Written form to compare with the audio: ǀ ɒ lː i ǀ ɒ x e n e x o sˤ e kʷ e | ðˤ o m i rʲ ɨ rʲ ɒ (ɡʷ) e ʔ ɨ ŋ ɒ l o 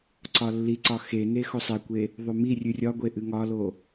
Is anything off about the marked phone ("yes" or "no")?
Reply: no